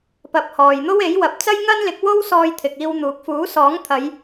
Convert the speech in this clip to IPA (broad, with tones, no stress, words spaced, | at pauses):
pɐ˨˥p̚ hɔː˨jn̪o˥we˨˥jwɐ˨˥p̚ t͡sɐ˥jŋɐ˥nlɪ˨˥k̚ wo˥wsɔː˧j t̪ʰɪ˨k̚iː˧wn̪uː˨k̚ fuː˨˥sɔː˨˥ŋt̪ʰɐ˨˧j